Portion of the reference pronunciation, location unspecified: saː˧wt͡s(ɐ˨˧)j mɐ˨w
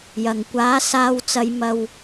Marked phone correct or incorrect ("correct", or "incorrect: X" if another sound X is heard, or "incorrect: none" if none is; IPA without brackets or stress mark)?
correct